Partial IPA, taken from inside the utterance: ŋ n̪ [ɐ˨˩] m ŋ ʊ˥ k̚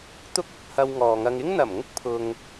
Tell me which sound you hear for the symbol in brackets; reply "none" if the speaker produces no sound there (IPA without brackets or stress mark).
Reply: ɐ˨˩